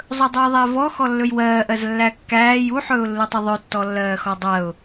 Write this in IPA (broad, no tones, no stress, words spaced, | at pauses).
zˤɵdˤujðˤævɔ xɔlːɵjwɜːʔɜz lːækːæːj uħɵːʊ̯lːutˤu ðˤɵtːɔlːɜːxɔ dˤɜʊ̯